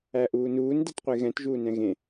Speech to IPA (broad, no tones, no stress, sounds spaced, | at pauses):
æ ʔ uː n uː n d ɛ t qʷ e ɣ ɛ̃ t ʒ uː n ɛ̃ ɣ ẽ